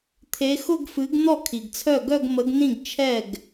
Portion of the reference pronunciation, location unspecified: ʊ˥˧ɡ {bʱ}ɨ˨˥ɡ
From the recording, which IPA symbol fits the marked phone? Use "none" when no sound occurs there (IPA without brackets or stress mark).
f